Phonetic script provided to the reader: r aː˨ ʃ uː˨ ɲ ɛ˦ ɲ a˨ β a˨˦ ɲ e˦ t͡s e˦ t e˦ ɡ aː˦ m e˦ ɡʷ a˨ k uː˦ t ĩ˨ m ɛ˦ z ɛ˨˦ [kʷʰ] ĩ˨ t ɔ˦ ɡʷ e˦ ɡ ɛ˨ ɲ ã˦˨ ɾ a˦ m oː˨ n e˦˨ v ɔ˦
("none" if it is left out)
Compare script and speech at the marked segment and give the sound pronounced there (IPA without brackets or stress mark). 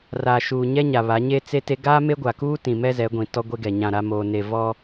ɡʷ